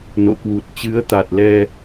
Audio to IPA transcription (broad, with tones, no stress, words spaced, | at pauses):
no̰˧˨kwu˨˩t̚ t͡ɕɨ˨˦ə̯t̪a˨˩t̚lɛ˧